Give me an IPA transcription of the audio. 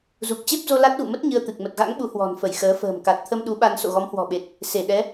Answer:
z u˨˩ k̚ t͡ɕ e˦˥ p̚ z o˧ l a˦˥ t̚ ɣ ṵ˧˨ m ə˦˥ t̚ ɲ ɨ˧ ə̯ t̪ ɨ˨˩ k̚ m ə˨˩ t̚ ɣ a̰˧˥ ŋ ɓ u˨˦ h w ɔ̤˨˩ n f ə˧˩ j x əː˨˦ f ə̤ː˨˩ m k a˨˩ t̚ t̪ʰ ə˧ m ɗ u˨˦ ɓ a˧ n s o̰˧˨ ɣ ɔ˨˦ m h w ɔ̤˨˩ ɓ e˨˩ t̚ | s e˧˩ ɗ ɛ˨˦

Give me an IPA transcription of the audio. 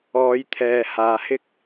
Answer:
ɔː˨˧ j t̪ʰ ɛː˨ h aː˨ h ɪ˥ k̚

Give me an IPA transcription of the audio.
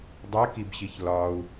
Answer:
dˤ e k i b ɕ i ç l ɒ u̯

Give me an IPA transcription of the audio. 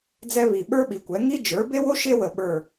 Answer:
d͡z ɛ˥ β i˧˩ ɓ ə˞˥ ɓ i˩˥ kʷ ɛ˩˥ ŋ i˥ d͡ʒ ə˞˩˥ b e˥ w o˥ ʃ e˥ w ə˧˩ ɓ ə˞˧˩

